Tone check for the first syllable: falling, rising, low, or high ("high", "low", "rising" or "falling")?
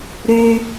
high